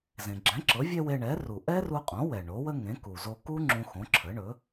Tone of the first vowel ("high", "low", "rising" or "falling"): low